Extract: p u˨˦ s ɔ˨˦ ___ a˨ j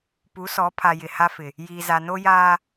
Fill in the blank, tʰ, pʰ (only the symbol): pʰ